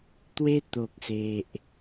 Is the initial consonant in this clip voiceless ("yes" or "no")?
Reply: yes